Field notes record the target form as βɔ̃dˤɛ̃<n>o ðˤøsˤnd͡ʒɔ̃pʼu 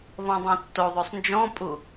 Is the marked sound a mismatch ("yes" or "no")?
yes